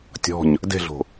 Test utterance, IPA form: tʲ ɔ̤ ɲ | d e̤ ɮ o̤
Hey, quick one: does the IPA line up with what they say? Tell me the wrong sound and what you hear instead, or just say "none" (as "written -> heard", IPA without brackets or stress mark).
none